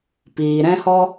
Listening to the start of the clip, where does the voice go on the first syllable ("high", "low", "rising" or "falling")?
low